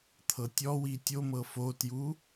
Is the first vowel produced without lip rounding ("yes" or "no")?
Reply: yes